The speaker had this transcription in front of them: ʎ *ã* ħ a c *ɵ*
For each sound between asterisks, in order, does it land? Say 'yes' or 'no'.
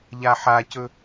no, yes

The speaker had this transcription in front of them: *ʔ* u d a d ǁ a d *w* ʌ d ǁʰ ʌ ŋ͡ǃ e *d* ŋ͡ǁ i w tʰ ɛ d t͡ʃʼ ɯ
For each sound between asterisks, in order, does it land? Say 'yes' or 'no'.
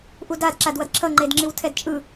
yes, yes, yes

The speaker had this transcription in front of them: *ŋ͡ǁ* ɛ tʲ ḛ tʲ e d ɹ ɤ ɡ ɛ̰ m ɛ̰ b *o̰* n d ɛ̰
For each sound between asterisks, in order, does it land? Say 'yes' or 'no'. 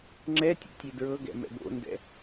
yes, yes

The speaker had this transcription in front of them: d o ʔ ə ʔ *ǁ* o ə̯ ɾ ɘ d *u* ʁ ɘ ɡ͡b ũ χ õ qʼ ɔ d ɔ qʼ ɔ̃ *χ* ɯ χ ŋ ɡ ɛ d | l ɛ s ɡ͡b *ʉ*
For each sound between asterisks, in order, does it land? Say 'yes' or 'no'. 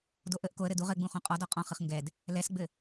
no, yes, yes, no

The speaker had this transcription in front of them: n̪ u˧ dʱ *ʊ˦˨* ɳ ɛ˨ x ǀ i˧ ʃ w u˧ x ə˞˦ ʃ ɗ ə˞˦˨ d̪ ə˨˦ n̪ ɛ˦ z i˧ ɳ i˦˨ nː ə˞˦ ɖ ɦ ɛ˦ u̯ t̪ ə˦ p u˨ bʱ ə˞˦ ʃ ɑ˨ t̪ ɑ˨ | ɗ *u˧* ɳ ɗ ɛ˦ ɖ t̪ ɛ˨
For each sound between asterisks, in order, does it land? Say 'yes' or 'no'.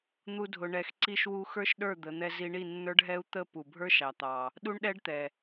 no, no

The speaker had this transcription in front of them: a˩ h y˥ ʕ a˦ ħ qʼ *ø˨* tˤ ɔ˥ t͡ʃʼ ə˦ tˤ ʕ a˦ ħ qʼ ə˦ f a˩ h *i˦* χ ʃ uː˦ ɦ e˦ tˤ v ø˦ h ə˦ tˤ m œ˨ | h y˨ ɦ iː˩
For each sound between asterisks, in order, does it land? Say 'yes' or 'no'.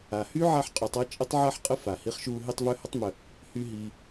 no, yes

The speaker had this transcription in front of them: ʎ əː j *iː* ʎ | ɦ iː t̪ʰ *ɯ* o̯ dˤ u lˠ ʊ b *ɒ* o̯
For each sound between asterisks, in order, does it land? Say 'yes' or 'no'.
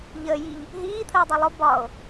no, no, yes

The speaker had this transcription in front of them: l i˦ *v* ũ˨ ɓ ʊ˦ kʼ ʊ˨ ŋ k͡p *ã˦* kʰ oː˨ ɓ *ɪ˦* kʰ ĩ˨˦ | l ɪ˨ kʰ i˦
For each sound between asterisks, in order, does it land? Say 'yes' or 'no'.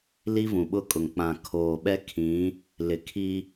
yes, no, no

